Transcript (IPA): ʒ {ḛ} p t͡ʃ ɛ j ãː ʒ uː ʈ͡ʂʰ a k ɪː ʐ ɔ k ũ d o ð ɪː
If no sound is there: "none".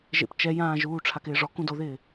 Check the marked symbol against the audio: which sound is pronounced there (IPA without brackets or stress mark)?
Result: ḛ